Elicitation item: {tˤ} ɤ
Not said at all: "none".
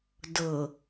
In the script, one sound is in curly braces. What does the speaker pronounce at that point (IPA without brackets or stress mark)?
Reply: d